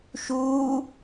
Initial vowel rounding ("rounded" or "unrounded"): rounded